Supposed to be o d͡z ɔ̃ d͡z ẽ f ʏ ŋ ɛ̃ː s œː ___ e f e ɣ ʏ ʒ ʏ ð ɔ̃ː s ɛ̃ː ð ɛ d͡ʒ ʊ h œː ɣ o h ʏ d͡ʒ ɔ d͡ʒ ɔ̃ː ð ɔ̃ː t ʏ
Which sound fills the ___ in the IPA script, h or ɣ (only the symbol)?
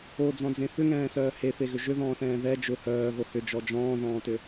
h